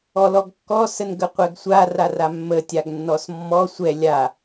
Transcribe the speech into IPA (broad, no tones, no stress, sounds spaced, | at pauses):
ɔ l ɔ ɡ kː ɔ s ə n ɡ ə qʷ ɛ ɡ sʷ a r a r a mː ə tʲ a ɡ nː ɔ s mː ɔ sʷ ɛ lʲ a